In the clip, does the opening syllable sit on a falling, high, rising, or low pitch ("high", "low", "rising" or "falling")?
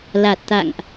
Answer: low